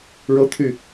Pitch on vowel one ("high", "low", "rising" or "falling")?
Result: high